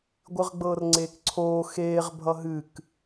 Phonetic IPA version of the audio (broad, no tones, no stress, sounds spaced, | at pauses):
ɡʷ ɨ ʁ ɡ͡b ɤː r ŋ͡ǀ eː k ǀʰ oː x eː ʁ bʱ ʌ ɦ ɨ k